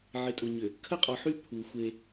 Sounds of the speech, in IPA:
ʕ ɪ˨ tʼ ʊ˨ ɲ ʏ˨ | kʰ ə˦ qʼ ɔ˨ ħ y˦ pʰ u˨ xʷ e˦

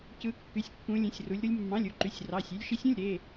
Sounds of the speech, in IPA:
c ɯ˦˥ kː y˧˥˧ sʲ kː ũ˦˥ lʲ ẽ˧˥˧ sʲ r u˦˥ lʲ ɾ u˦˥ lʲ mː ɑ̃˧˥˧ lʲ u˧˥˧ ǃ y˧˥˧ sʲ r ɑ˧˥˧ sʲ y˦˥ lʲ ʃ i˦˥ sʲ ũ˧˥˧ lʲ ɾ e˧˥˧

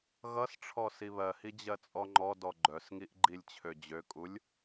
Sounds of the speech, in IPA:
ɣ ʌ s ʈ͡ʂʰ ɔ s i β ɜ h i d͡ʑ ɜ t͡sʼ ɔ ŋ͡ǃ ɔ d ɔ ɡ͡ǃ œ s ŋ i ʔ ɡ͡ǃ i lʲ t͡ɕʰ ø d͡ʑ ø kʼ u lʲ

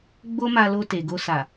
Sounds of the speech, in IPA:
ɡ͡b o˦ m a˧ l o˧ t e˨ ɡ o˧ s a˨

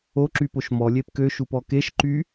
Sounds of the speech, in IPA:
o ǁ y p o ʃ m ɔ lʲ e p k ø ʃ u p ɔ k e ʃ ǃ y

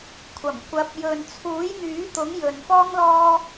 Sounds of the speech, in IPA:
kʷʰ ɐ˨˩ m kʷ ɐ˨˥ p̚ j ɵ˨ n t͡sʰ uː˨˥ j n̪ yː˨˥ t̪ ʊ˨˥ ŋ j ɵ˨ n f ɔː˥ ŋ l ɔː˥

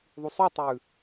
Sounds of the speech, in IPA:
ðˤ u sˤ u tˤ ʉː

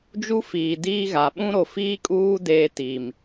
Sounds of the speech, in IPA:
d͡ʒ u˦ f iː˨ d iː˦ ɣ a˨ ɓ ũ˦ ɾ o˨ f iː˦ kʼ uː˦ d eː˦ t i˨ m

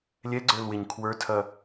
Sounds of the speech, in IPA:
lʲ ɛ ɡ͡ǀ ə˞ l w e ɲ kʰ w ə˞ tʰ ɐ

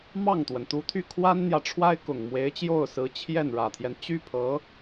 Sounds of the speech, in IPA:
m ɑ˥˩ ŋ t̪ w ə˩ n t̪ u˧˥ t̪ʰ y˥˩ kʰ w a˥ n n̪ j ä˨ ʈ͡ʂʰ w a˥ ɪ̯ k ʊ˨˩ ŋ m w e˧˥ ɪ̯ t͡ɕ j o˥˩ ʊ̯ s ɹ̩˧˥ t͡ɕʰ j ɛ˥˩ n ɻ ä˨˩ t̪ʰ j ɛ˦ n t͡ɕ y˥ pʰ ɤ˧˥

